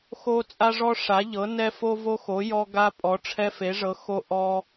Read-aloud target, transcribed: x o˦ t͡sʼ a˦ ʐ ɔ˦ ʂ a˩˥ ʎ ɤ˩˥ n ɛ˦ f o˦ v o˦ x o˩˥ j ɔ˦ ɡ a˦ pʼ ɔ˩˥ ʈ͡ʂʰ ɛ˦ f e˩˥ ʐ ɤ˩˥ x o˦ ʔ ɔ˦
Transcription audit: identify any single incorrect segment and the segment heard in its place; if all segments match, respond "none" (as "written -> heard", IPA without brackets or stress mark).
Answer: none